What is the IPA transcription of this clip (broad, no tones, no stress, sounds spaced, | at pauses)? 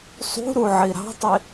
sˤ ṳ ɾ u ʕ i ɾ ɑ̤ tˤ i